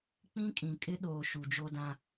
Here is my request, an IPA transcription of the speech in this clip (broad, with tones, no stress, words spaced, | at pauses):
k͡pĩ˦kʼĩ˨ kʼɪ˦ɗoː˨ ʃu˨d͡ʒo˦dã˦